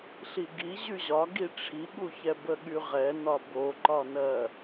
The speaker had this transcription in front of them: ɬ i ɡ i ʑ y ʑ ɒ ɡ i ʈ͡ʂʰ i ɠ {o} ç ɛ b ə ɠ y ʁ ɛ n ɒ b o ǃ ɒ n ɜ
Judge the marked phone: incorrect: u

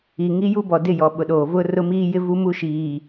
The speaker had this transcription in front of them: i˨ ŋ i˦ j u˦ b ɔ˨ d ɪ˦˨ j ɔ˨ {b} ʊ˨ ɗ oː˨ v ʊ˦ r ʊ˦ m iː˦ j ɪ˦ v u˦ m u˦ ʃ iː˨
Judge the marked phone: incorrect: ɓ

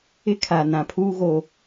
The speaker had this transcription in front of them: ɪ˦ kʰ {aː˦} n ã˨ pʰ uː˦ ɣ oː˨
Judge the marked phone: incorrect: aː˨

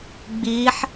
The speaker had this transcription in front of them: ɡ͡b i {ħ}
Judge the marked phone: correct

